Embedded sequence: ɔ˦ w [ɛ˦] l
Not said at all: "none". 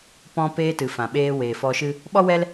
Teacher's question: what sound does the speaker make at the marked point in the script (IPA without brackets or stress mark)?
ɛ˦